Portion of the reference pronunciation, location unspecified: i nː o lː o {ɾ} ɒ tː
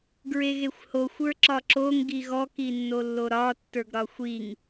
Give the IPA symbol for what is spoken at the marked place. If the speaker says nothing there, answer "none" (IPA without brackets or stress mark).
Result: ɾ